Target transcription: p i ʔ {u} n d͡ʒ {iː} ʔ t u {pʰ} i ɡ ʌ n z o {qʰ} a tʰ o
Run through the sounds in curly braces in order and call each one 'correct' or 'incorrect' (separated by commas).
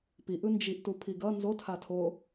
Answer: incorrect, incorrect, correct, incorrect